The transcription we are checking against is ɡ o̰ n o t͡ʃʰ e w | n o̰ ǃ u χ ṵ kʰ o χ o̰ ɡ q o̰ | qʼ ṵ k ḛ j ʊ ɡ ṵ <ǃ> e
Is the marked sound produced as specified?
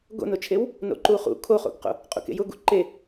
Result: yes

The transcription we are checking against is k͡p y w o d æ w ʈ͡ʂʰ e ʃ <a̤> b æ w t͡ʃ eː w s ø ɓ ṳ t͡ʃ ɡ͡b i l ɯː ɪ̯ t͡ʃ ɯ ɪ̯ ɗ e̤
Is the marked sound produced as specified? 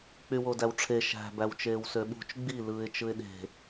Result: no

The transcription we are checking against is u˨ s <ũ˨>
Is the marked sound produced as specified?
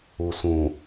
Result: yes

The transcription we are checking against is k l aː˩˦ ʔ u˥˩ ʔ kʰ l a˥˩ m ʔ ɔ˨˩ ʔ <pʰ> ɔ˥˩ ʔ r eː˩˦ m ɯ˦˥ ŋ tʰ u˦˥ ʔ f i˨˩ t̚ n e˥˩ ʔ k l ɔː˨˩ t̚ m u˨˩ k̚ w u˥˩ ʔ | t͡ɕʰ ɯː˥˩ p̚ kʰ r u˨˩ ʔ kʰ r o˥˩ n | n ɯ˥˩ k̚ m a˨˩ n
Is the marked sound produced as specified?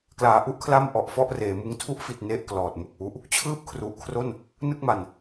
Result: no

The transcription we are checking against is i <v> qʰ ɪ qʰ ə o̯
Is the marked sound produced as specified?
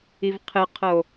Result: yes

